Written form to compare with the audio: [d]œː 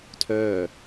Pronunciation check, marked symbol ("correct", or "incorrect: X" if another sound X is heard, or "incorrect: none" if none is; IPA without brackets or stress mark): incorrect: tʰ